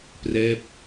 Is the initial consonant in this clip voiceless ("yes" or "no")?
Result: yes